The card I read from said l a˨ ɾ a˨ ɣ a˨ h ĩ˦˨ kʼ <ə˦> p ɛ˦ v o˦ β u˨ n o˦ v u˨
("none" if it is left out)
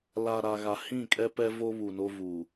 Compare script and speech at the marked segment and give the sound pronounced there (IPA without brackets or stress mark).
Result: ɛ˦